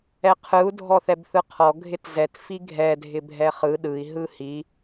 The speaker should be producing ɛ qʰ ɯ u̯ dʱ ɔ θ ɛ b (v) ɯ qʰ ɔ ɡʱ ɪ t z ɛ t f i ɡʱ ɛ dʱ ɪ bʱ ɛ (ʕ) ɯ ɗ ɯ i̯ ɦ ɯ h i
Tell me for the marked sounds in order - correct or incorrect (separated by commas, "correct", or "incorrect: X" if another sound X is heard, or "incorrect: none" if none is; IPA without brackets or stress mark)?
incorrect: θ, incorrect: χ